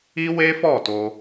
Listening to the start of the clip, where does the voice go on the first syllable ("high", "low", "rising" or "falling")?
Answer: high